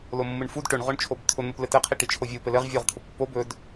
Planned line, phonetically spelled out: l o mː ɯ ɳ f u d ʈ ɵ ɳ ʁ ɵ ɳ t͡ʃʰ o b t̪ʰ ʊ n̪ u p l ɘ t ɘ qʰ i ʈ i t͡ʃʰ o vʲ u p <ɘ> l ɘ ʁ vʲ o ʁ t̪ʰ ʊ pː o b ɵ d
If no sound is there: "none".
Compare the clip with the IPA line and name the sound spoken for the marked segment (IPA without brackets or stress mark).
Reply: ɘ